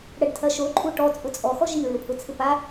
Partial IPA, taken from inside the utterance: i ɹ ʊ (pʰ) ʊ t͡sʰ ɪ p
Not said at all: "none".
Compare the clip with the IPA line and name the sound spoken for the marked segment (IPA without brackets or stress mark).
pʰ